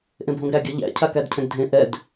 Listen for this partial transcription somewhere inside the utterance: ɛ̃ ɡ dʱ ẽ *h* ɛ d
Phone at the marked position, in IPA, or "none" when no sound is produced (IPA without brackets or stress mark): ʔ